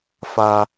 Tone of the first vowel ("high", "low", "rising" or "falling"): high